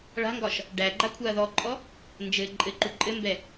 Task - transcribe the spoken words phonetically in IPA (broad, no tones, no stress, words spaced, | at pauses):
ɭa̤ŋɡɒʃ | ɖæɡ͡ǃa kʷʰaɐ̯ðɔǃʼɔ | nd͡ʒɘ ǃʼɘǃu ǃʼɘmbɛ